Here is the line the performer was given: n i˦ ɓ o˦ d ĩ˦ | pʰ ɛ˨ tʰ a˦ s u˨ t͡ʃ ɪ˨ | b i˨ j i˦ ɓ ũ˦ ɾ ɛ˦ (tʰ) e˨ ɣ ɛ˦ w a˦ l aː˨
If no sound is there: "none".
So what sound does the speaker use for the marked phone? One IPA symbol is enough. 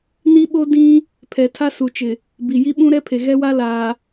pʰ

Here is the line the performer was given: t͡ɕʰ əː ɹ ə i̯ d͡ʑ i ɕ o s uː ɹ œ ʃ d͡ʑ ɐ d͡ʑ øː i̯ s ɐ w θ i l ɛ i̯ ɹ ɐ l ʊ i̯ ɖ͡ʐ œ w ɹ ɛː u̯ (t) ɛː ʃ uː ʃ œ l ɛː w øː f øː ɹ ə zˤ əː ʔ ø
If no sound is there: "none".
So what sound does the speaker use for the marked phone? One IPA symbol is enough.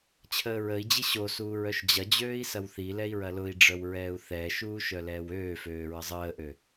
θ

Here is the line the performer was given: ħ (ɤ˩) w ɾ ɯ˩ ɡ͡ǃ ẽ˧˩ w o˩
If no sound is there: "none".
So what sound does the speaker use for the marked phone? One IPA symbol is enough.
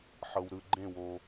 ɤ˩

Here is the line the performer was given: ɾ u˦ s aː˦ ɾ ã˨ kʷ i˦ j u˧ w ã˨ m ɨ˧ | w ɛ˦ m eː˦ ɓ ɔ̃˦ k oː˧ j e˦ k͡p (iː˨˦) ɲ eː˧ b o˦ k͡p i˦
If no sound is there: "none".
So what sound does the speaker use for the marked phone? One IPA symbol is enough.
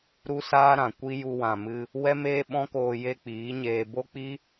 iː˨˦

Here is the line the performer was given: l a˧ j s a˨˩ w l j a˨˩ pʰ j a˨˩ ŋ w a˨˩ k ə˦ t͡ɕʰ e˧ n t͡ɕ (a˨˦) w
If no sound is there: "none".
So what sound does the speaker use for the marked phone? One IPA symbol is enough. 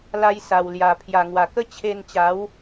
a˨˦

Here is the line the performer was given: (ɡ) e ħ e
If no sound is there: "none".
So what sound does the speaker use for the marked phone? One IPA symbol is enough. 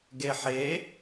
ɡ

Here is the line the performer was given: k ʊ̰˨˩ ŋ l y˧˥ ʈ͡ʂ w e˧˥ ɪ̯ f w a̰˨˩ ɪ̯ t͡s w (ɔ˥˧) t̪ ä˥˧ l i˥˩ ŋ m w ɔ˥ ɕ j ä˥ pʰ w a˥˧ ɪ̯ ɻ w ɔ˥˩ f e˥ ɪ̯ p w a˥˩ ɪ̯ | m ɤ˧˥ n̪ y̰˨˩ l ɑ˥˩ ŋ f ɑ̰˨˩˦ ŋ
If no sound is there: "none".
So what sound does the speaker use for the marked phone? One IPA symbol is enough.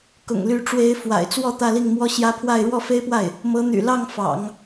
ɔ˥˧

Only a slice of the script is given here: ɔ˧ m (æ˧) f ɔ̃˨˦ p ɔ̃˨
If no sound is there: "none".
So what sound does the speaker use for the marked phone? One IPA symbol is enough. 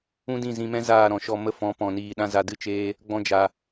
ə˧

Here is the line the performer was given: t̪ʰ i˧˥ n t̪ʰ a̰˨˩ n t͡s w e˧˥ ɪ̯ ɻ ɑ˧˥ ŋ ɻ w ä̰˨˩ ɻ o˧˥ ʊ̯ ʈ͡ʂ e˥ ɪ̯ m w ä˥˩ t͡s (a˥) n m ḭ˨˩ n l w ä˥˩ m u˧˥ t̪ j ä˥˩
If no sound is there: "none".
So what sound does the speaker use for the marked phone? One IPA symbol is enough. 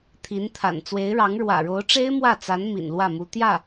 a˧˥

